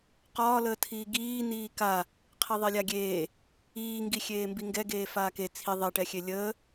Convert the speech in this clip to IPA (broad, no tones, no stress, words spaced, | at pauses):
qɒːləːtʰiː ɡiː niːka | qʰeðˤelʲaɡʲeː | iːŋɡi xʲeːmbiŋɡɛɡeː faːke t͡sʰi ðˤeʈɛxʲe lʲəː